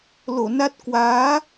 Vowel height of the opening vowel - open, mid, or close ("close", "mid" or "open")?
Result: mid